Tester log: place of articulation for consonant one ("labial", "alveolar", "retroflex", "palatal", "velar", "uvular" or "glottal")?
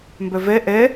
labial